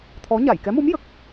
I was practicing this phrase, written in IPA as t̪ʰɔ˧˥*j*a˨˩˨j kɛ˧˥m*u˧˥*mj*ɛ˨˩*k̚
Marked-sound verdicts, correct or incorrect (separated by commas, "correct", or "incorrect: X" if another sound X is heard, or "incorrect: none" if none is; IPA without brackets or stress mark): incorrect: ɲ, correct, incorrect: ə˨˩